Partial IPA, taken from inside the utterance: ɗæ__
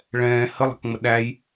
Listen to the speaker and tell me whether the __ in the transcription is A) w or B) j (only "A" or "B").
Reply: B